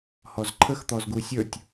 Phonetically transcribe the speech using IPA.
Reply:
hɔzǃʰəxt̪ɔzɡu sʲə˞tʲ

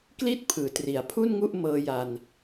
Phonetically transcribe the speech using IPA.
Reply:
kli˥˩t̚pʰɯː˩˦tri˩˦a̯pʰu˥˩n ŋu˥˩ʔ mɤː˧ja˧n

